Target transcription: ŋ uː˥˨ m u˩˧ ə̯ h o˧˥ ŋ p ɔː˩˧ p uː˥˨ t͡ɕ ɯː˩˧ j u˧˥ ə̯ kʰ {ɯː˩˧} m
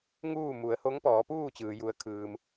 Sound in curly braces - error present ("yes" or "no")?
yes